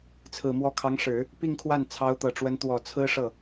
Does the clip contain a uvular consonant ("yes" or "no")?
no